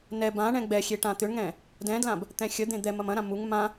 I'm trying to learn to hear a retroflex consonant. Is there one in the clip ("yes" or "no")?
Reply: yes